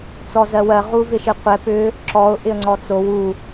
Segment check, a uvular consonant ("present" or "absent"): present